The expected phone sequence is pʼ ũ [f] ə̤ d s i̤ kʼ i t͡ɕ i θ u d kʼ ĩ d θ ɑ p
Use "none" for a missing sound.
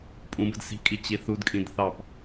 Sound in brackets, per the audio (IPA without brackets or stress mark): b